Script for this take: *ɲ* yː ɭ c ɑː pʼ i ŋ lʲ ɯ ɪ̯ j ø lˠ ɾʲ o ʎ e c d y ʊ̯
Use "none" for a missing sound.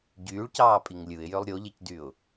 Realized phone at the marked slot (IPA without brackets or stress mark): ɟ